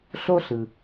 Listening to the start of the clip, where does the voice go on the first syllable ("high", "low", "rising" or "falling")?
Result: high